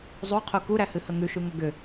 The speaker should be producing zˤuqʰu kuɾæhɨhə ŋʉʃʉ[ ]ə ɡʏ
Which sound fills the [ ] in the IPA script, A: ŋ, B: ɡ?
A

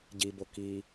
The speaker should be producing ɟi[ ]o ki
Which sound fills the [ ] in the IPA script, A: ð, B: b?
B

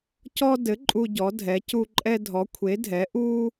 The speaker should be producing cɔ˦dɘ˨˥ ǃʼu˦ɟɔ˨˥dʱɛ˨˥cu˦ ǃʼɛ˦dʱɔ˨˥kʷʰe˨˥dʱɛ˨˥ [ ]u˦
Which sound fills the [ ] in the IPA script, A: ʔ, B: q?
A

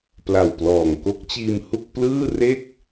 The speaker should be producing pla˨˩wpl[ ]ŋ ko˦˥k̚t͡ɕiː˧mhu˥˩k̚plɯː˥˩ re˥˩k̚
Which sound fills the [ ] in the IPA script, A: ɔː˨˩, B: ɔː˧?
A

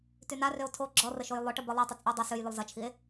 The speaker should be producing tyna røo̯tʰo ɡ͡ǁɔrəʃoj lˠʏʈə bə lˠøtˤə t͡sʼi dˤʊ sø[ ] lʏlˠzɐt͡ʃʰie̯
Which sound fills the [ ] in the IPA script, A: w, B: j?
B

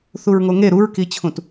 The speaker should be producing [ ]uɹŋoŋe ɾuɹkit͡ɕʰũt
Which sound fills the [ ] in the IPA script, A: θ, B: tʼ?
A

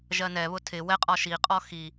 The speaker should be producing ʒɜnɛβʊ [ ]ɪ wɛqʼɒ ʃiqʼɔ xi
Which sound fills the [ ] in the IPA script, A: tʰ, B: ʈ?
A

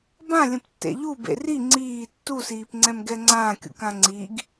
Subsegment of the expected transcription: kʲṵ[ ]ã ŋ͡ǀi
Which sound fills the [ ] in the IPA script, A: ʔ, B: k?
B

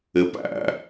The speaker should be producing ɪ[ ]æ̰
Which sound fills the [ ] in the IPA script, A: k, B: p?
B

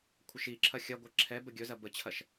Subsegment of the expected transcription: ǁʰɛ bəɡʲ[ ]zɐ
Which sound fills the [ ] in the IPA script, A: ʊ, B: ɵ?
B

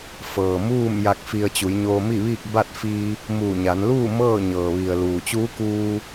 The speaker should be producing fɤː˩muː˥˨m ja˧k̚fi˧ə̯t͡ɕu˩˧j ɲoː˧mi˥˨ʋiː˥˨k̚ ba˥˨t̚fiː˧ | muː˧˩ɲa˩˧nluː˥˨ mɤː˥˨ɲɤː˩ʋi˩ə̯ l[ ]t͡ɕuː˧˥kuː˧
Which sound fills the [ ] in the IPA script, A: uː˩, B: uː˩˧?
A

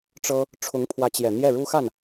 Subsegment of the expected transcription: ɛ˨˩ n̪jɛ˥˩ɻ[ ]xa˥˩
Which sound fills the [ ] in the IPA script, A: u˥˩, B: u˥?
B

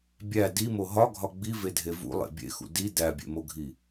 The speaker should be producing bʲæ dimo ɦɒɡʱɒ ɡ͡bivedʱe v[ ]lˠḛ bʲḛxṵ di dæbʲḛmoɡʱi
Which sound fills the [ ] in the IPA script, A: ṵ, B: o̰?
A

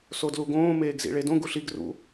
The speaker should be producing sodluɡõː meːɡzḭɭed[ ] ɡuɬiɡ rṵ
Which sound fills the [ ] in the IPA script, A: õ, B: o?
A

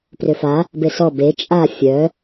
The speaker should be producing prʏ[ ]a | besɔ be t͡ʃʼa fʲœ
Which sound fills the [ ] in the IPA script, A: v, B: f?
B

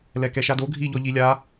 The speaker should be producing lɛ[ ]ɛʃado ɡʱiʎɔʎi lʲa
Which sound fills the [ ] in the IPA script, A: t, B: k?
B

